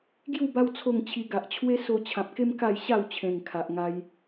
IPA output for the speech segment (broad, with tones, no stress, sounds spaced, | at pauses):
ɡ j u˥˧ b a˦ w t͡sʰ o˥˧ ŋ t͡ɕʰ i˧ ɡ a˨ ʔ t͡ɕʰ w e˦ s o˧ t͡ɕʰ ã˨ p̚ k e˦ m k a˥˧ j ɕ a˥˧ w t͡ɕʰ ẽ˨˩ ŋ kʰ a˨ ʔ ŋ a˧ j